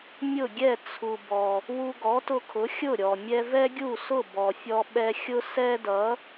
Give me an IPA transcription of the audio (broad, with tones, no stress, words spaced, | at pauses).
mʲʊ˥˩ɡʲɛ˥˩ t͡sʰu˩ bɔ˩ | wu˧ɡɔ˩˥tʊ˧kʰʊ˩˥ xʲʊ˥˩ ɾʲɔ˩ mʲɛ˧vɛ˥ɡʲu˥˩ sʊ˥˩bɔ˩ fʲɔ˧ɓɛ˧xʲʊ˥ sɛ˥dʌ˩˥